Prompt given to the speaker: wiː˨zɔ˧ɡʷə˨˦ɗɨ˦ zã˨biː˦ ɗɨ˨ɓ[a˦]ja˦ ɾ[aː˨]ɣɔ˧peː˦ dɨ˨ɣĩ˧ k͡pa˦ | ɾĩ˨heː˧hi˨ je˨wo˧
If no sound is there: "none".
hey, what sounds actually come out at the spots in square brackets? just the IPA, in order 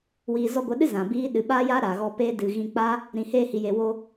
a˦, aː˨

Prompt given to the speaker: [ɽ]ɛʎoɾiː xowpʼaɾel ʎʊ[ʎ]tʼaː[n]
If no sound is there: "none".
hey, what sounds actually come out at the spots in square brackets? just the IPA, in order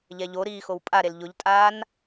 ʎ, ʎ, n

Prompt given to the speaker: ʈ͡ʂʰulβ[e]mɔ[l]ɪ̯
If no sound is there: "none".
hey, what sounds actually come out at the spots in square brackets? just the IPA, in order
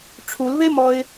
e, none

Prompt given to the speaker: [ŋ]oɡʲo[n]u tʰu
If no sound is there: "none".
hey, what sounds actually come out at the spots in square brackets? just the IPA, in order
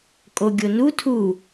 kʼ, n

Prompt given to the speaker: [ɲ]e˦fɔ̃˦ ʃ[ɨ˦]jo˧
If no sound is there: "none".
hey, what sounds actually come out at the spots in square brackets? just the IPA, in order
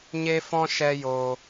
ɲ, ɛ˦

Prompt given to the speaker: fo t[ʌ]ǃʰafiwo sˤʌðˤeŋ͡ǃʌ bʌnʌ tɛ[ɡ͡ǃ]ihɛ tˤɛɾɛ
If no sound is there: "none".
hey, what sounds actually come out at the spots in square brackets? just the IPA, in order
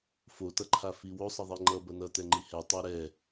ʌ, ŋ͡ǃ

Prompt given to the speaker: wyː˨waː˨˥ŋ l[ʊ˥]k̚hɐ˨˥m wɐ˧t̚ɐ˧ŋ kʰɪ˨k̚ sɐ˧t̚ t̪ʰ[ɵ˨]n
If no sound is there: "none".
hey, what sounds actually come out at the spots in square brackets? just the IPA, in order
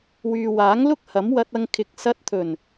ʊ˥, ɵ˨˩

